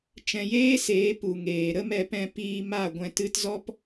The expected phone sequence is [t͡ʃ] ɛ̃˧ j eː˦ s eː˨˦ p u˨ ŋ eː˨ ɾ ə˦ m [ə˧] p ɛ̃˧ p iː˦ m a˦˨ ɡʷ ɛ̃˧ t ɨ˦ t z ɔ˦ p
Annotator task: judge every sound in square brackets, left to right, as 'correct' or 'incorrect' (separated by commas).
correct, incorrect